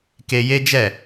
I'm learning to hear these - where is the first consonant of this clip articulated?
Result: velum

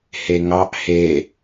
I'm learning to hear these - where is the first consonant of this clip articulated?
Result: throat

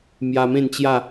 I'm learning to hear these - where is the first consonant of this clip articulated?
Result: lips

